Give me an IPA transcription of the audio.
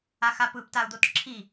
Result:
a x a p ɯ p t a u̯ d̪ o t ǁʰ i

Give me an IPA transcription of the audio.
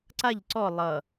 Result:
ǀ a ʎ ǀ ɔ lˠ ʌ

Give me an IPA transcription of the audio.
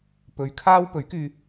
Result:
p ɵ˨˧ ɥ kʰ aː˥ w p ɵ˨˥ ɥ k yː˧

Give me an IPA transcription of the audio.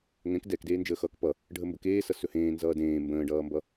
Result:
ŋ ɛ̃ k d ɛ k d eː n d͡ʒ əː x ʌː k p ʌ | ɖʱ ə m b ə k eː s ʌ s ɵ h ẽː n z ʌː d ẽː m b ə̃ː ɖ ʌː m b ʌ

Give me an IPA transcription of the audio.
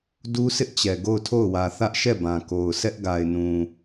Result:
d u˦ sʰ ɪ˦ ʔ t͡ɕ ɛ˨ ɡ o˦˨ ʊ̯ tʰ o˦˨ ʊ̯ w ä˨ θ ä˦ ʔ ʃ ɛ˦˨ b ã˨ k o˨ ʊ̯ sʰ ɛ˦ ʔ ɡ a˨ ɪ̯ n ũ˨

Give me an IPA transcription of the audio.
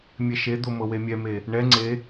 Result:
mʲ ɛ ʃ e d̪ o m ɤ w e mʲ ɛ m e | ɳ ɛ ŋ͡ǀ e

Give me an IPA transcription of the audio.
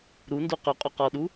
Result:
ɾ u n d u q ʉ qʼ o q ɔ ɗ u

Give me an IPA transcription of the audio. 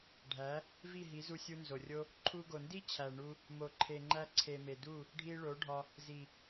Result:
ɖʱ æ˨˦ | v i˦˨ ɦ i˨˦ z u˧ sʲ u˧ n z o˨ rʲ o˦ | ǃʰ u˧ ɡ o˨ n d i˦ t͡ɕʰ æ˨ ɳ u˧ | m o˨ ǃʰ e˨ ŋ͡ǃ æ˧ ǀʰ e˨ m e˨ d u˦˨ | ɖʱ i˧ ɭ o˨˦ ɖʱ ɒ˧ | z i˨

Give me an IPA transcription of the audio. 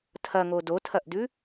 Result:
tʰ ɐ ŋ o d o tʰ ɐ ʔ d ʉ

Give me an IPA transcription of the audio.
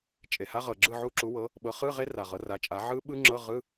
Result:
t͡ʃʼ e˩ h a˦˥ ʁ ɤ˩ ɡ͡ǁ ɯ˥˨ ʕ u˦˥ ǁ u˩˥ w ɤ˩˥ | ɓ ɤ˩˥ χ ɯ˧˥˧ ʁ e˦˥ r a˩ ʁ ɤ˩˥ r a˩˥ t͡ʃʼ a˩˥ ʕ ɯ˦˥ ɓ ɯ˦˥ ŋ͡ǁ ɤ˧˥˧ ʁ ɯ˧˥˧

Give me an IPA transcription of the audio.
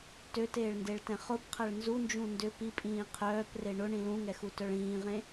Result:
t ø t eː ɭ n d e ɭ t ɛ̃ χ ʊ p qʰ ɐ ɭ n z u n d͡ʒ ũ n d ʏ p i pʼ ĩː qʰ œː p r e ɳ ʊ ɳ ĩ l ũ ŋ ɛ x u t œ ɭ ĩː ʁ ẽ

